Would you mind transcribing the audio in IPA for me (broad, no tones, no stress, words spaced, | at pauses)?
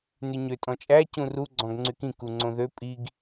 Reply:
nyɲø tʼɔ̃t͡ʃʼæ cũru ɡ͡ǀɔ̃ɡŋ͡ǀykĩ kuŋ͡ǀõðø pʼiɡ